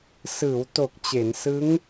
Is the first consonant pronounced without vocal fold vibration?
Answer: yes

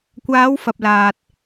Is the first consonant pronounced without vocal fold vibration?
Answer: yes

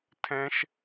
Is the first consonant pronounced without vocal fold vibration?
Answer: yes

